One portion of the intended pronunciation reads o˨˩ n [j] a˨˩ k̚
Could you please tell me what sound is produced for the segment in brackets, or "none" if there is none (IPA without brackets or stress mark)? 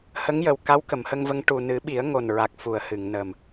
ɹ